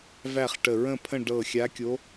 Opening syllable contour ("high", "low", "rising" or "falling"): falling